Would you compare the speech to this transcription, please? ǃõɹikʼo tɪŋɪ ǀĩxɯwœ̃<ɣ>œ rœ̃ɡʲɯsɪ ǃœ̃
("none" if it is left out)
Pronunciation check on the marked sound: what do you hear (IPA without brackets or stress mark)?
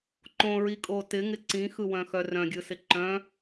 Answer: x